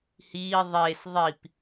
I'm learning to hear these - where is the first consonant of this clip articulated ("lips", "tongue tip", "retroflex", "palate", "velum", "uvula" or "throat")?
throat